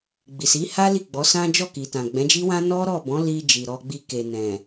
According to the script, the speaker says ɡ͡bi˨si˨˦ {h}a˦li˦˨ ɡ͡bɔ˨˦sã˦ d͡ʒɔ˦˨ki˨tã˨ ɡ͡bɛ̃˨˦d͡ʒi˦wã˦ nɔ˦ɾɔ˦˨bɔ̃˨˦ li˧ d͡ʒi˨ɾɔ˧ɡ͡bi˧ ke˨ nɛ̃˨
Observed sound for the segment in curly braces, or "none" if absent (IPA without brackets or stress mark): h